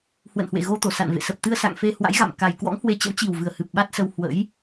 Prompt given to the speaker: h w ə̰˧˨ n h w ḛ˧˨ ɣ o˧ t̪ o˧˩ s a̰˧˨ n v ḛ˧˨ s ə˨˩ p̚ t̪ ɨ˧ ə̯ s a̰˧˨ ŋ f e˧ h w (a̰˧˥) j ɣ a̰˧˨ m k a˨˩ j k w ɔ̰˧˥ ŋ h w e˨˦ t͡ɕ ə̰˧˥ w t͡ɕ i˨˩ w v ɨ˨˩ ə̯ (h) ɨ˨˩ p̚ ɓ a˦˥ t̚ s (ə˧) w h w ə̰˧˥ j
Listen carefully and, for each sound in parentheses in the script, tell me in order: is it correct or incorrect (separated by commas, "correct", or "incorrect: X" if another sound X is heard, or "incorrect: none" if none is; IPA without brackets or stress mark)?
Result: correct, correct, correct